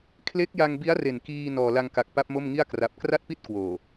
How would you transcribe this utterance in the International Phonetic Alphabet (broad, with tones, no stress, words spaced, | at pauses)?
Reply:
kʰle˦˥k̚ja˧ŋbi˦˥a̯re˨˩n kiː˧ nɔː˨˩la˧ŋka˨˩k̚ pa˦˥p̚mo˥˩mŋi˥˩a̯ kra˦˥p̚ kra˥˩t̚pi˥˩t̚kwoː˨˩